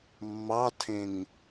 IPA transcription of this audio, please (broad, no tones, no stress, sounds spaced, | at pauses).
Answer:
mː ɑ tʰ ẽ ŋ